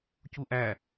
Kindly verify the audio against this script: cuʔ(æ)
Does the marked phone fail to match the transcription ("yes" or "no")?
no